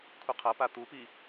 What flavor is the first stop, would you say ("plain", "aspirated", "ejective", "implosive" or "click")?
aspirated